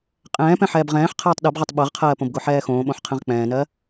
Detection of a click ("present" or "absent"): absent